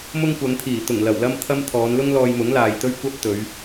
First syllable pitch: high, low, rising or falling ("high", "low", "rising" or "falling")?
high